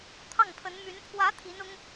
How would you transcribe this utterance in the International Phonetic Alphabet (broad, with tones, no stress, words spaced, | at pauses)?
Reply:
t̪ʰɑ˥˩ŋpʰə˧˥nmy˧˥n pʰwä˧˥ t̪ʰi˧˥nʊ˥ŋ